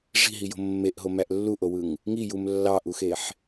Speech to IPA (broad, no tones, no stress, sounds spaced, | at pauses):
ʐ i̤ ɦ i j o̤ mː e ʔ ɦ o m æ ʔ lː u ʔ o w ɯ ŋ | ŋ i j u m lː ɑ ʔ u x e ħ